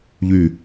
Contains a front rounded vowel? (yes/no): yes